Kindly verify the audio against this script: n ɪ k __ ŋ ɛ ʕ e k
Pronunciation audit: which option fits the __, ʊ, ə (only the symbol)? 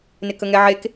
ə